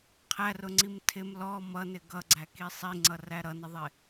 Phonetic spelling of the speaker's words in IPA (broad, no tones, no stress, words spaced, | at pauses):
qʰærʊŋ͡ǀim tʰɪm lɔ mʌnɪ ɡʌɡ͡ǀæki sˤiŋ͡ǀʌræ ɾʌnəðˤɪ